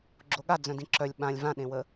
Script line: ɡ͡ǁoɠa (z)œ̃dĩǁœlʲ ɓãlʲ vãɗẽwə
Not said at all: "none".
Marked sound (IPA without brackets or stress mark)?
d͡z